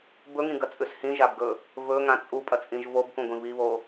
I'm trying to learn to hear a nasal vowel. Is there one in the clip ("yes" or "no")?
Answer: yes